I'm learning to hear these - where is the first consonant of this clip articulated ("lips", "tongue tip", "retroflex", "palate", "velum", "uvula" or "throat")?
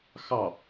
velum